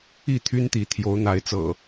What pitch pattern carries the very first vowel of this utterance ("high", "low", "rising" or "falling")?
falling